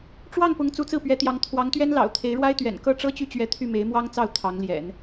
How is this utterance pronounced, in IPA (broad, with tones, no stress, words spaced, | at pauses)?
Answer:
ʈ͡ʂwɑ˥˩ŋpʊ˧˥ŋ t͡su˧˥t͡sɹ̩˥˩pɥɛ˧˥t̪jɑ˧˥ŋ t̪ʰwɑ˧˥ŋt̪ɥɛ˥n lɑ̰˨˩ʊ̯t̪ʰe˧˥ɪ̯ɻwa˥ɪ̯t̪ɥɛ̰˨˩n kɤ˥˩ʈ͡ʂɤ˥t͡ɕy˥˩t͡ɕɥɛ˧˥ t̪ʰy˥˩me˧˥ɪ̯mwɑ˥ŋt͡sɑ˥˩ʊ̯ t̪ʰɑ˧˥ŋljɛ̰˨˩˦n